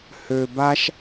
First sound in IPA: h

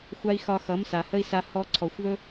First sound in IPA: xʷ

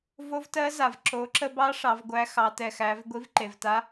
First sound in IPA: v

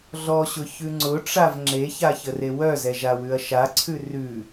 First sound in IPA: ɮ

